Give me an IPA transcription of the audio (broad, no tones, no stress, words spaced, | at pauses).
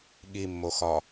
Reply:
ɠimːoxɒ